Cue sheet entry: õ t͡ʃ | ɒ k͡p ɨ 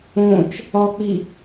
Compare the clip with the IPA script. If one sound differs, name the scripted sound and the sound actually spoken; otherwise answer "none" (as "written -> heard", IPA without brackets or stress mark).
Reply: ɨ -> i